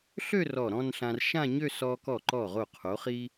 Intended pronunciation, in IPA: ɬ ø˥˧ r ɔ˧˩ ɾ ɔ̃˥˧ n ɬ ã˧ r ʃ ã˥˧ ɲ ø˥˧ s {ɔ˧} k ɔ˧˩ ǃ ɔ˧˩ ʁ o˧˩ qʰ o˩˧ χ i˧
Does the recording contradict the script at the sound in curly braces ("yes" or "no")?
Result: no